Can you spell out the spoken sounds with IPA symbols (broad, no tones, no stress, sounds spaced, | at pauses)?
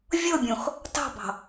vʲ ɤ bʲ õ x | t ɑ̤ b ɑ̤